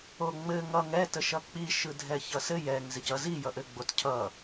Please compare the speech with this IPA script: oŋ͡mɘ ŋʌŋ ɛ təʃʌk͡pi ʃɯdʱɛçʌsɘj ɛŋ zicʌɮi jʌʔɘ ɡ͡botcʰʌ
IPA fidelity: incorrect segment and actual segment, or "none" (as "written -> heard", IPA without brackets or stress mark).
ɮ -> z